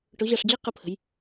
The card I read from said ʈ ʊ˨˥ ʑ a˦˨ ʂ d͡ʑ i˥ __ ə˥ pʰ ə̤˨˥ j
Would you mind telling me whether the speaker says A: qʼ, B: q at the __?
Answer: B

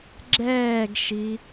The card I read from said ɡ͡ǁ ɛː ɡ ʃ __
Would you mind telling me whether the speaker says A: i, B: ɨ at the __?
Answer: A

